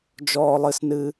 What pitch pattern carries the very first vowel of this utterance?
high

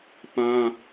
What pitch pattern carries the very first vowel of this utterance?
high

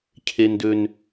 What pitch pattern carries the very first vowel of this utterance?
low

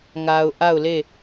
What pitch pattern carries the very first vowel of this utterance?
low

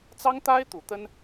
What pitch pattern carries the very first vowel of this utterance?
high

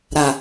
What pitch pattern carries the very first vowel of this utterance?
low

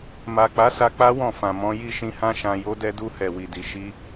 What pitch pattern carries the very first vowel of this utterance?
low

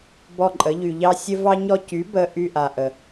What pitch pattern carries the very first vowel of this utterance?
falling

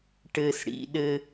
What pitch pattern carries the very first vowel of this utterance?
low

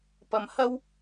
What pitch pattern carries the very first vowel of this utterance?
low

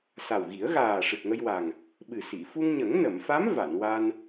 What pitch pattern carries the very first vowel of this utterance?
low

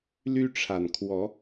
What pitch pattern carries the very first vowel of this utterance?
high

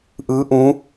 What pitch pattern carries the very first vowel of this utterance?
rising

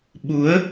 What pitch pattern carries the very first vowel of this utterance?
rising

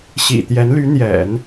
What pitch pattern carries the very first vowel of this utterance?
low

